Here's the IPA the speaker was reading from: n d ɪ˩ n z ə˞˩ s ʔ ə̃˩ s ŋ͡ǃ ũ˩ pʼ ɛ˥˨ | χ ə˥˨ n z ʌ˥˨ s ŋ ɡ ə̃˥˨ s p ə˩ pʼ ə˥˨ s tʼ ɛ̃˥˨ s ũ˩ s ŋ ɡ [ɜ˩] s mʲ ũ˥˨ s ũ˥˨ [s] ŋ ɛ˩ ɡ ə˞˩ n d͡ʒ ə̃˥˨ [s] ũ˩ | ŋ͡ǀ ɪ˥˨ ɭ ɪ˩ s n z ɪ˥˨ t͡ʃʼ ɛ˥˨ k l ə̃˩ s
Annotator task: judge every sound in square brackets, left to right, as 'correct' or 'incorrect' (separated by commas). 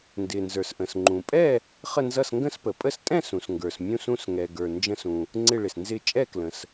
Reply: incorrect, correct, correct